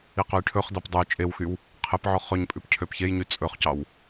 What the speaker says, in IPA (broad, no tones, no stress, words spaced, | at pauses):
iqɵjʈʰɵχdɑp dˤuj t͡ʃʼewxyw | qʰepʕɔχ ɵɲpʼʉp cʰøpçejɲy t͡sʼɵχcɑw